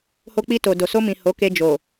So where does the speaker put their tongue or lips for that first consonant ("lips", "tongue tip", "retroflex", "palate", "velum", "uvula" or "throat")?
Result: throat